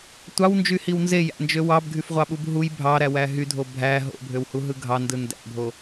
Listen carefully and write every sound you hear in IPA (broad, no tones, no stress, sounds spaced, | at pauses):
tʷ ɑ w n d͡ʒ y h i w n z e j æ̰ n d͡ʒ ø w ɑ b ɡʱ y f ʁʷ ɑ ɓ u b ɦ u j bʱ ɑ ɾ æ w æ ɦ y dʱ o bʱ æ ɦ o̰ bʱ ø w h u ɦ ɯ ɡʱ ɑ n d ɯ n d æ̰ bʱ o